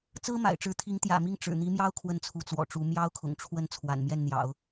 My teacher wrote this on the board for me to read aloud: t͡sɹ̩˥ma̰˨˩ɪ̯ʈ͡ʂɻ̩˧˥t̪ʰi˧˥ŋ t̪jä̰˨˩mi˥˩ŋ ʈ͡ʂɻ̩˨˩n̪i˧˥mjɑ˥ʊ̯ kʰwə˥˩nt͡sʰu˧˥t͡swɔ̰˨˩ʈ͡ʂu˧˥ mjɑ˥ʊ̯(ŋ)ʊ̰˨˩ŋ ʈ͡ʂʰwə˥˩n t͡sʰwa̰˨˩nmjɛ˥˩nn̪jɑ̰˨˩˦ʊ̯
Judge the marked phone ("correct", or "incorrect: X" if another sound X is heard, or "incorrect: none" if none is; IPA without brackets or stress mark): incorrect: kʰ